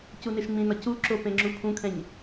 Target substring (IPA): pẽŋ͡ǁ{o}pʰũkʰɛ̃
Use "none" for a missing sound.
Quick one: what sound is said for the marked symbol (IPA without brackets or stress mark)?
u